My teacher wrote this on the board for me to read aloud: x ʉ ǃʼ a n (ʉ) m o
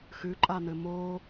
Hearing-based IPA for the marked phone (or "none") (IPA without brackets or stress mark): ɘ